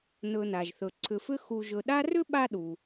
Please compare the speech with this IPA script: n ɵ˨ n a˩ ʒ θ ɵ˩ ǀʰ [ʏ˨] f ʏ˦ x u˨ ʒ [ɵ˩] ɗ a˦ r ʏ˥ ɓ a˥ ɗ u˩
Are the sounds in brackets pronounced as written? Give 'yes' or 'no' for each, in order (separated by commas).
yes, no